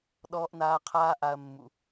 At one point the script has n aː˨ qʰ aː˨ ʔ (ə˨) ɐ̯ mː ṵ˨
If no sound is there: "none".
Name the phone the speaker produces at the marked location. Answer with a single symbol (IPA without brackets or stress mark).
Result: a˨